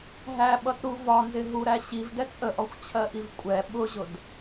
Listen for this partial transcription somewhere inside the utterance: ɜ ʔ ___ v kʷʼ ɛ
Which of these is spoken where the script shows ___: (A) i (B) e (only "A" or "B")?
A